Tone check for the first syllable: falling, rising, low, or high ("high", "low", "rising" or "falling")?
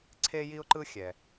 high